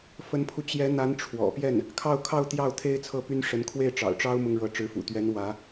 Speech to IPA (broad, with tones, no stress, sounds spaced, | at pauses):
f ə˧˥ n pʰ u˧ t͡ɕ j ɛ˧˥ n̪ a˧˥ n ʈ͡ʂʰ w ɔ̰˨˩ p j ɛ˥˩ n | kʰ ɑ˥˧ ʊ̯ kʰ ɑ˥˧ ʊ̯ t̪ j ɑ˥˩ ʊ̯ t̪ʰ e˥ ɪ̯ t͡sʰ ɤ˥˩ p y˥ n ʂ ə˧˥ n kʰ w e˥˩ ɪ̯ ʈ͡ʂ ɑ̰˨˩ ʊ̯ ʈ͡ʂ ɑ˥ ʊ̯ m ʊ˥ ŋ ɻ ɤ˧˥ ʈ͡ʂ ɻ̩˧˥ f ṵ˨˩ t̪ ɥ ɛ˧˥ n w ä˧˥